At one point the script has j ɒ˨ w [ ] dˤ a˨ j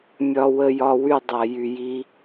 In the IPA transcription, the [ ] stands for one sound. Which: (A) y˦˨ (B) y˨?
A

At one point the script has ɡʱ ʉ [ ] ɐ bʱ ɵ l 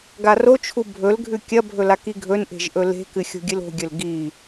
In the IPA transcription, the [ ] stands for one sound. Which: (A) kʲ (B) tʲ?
A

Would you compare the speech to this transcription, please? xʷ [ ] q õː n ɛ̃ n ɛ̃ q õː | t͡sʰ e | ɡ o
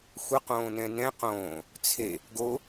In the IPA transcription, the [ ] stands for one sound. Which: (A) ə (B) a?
A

